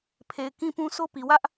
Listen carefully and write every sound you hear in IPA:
pʰ e˨ ɪ̯ k ĩ˦ p ũ˦ s o˦ p i˨ w ä˦ ʔ

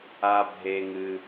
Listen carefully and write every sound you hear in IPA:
a˧ bʱ e˧ ŋ ɨ˧

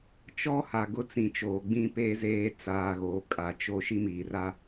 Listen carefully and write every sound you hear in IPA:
t͡ʃ ɔ˦ h a˨ ɡ ʊ˦ t͡s ĩ˨ t͡ʃ oː˨ ɡ͡b ĩ˦ p eː˦ z eː˦ t͡s aː˨ ɣ oː˨ kʼ a˨ t͡ʃ o˦ ʃ i˦ m iː˨ r a˦

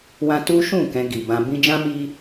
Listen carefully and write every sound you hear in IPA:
w ã˧ t u˦ ʃ ũ˦˨ k ɛ̃˧ ɡ i˨ b ã˧ b ĩ˧ d͡ʒ ã˦ m i˦

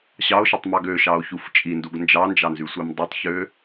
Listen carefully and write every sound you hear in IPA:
ɕ ɑ o̯ ʃ ɯ tˤ m ɑ ɡ ø ʃ ɑ o̯ ç u f t͡ʃʼ i n d u ɡ n d͡ʒ ɑ n d͡ʒ ɑ n z y sʷ e m dˤ o tˤ ç ø

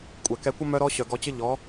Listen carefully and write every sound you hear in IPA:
kʷʼ ɛ˨ k ɛ˧ kʷ ə˦ m œ˧ ɾ ɔ˧ ɕ œ˨ ɡ ɔ˧ t͡ɕ ə˦ ʎ ɔ˨˦

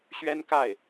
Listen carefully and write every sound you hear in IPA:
ɕ ɥ ɛ˥ n k a˥˩ ɪ̯

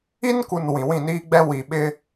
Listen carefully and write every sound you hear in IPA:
i˦ n k u˨ n w ĩ˨ w ĩ˦˨ n iː˦ ɡ͡b ɛ˦ w i˨ ɓ ɪ˦

